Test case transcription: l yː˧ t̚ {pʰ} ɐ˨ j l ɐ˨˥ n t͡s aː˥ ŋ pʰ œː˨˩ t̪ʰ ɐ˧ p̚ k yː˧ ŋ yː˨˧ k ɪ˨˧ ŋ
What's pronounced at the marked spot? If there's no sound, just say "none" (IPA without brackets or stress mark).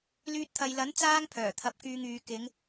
t̪ʰ